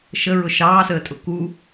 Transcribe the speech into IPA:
ʃ ə ɹ ʊ ʃ ɑː s əː tʼ ʊ k u

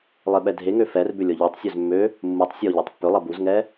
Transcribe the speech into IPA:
lˠ e ɓ ɛ dʱ e ŋ ø f ɛ r b ʏ lʲ ɔ ʎ ɔ tˤ sʲ ø z mː ø | mː u tˤ sʲ ɔ ʎ e tˤ pː ʏ lˠ ɐ b u z ŋ ɛ

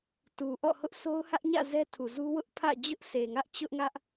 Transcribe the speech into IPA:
t u˨ ʔ ɔ̰˦˨ h ʊ˦ ʔ s o˦ ʊ̯ h ä˦ ʔ ɲ ä̰˦˨ z ɛ˦ tʰ u˨ z u˦ w ʊ˦ ʔ pʰ ä̰˦˨ d͡ʑ ʊ˦ ʔ sʰ e˨ ŋ ä˦ ʔ t͡ɕ ʊ˦ ʔ ŋ ä˦ ʔ

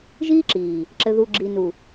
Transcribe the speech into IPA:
ʒ iː˦ ǁ iː˨ | ǁ ɘ˨ ð u˨ ɡ͡ǁ i˨ n u˨

